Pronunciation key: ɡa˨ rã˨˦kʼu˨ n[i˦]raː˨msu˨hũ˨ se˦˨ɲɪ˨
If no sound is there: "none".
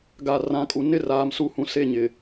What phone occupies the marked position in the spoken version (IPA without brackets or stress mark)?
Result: ɪ˦